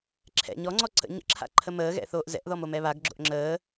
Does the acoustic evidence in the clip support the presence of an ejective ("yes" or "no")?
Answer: no